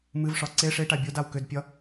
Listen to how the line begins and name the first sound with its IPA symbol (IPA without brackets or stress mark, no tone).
m